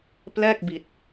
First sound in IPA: p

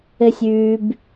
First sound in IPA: ɘ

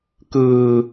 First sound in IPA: k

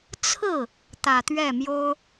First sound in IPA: t͡sʰ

